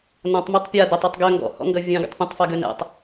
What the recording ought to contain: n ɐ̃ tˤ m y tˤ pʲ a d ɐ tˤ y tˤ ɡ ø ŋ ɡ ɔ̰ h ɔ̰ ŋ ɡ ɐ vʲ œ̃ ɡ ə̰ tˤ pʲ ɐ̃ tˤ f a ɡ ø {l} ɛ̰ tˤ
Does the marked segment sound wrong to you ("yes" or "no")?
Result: yes